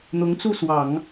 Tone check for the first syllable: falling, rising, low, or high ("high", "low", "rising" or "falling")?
rising